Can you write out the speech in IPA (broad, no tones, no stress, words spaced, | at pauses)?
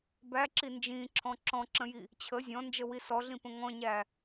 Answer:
bæǁi nd͡ʒĩǁʰɔ̃ ǁɔ̃ǁə̃ji | t͡ɕʰə zʲɔ̃nd͡ʒəwi sɔɮĩpə̃ ŋɔ̃ɲæ